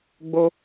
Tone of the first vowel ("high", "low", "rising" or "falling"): high